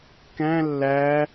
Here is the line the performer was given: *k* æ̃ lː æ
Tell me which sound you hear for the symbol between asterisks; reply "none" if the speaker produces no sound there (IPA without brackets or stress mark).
k